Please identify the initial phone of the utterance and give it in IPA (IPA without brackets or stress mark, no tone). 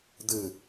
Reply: d̪